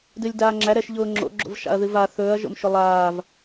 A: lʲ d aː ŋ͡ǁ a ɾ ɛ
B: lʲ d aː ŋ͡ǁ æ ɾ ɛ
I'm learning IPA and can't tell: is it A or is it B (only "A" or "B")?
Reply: B